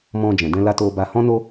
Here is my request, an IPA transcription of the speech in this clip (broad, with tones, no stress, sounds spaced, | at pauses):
m ɔ̃˧ d͡ʒ ɛ̃˨ d ɛ̃˧ l a˧ t o˧ b a˧ h ɔ̃˦ n o˦